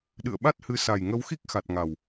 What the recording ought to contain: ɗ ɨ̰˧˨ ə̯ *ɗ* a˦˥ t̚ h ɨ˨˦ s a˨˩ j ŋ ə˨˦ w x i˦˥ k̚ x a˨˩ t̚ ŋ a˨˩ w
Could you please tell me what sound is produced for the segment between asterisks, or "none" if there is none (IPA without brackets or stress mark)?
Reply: ɓ